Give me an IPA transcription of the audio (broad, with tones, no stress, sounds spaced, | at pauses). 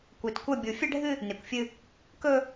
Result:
kʷ e˨ t kʷ ɐ˦˨ bʲ u˨ fʲ ɐ˦ ɖʱ ɨ˦ | n e˨ kʷ fʲ ɨ˦ | k ɵ˦